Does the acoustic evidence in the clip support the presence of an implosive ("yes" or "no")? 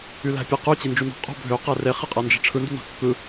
no